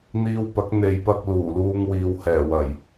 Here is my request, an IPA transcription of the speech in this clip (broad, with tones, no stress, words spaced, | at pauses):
n̪iː˧wpɐ˨˥k̚ n̪e˨jpɐ˧k̚ luː˨˩luː˧ŋwiː˨w hɛː˨˩ wɐ˨˩j